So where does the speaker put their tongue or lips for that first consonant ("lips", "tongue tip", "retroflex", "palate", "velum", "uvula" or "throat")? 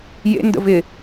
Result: palate